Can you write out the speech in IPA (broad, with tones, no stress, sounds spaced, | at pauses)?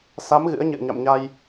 s a˨˦ m ɣ ɨ̰˧˥ ə̯ ɲ ɨ̰˧˨ ə̯ ɲ a̰˧˨ m ɲ a˧ j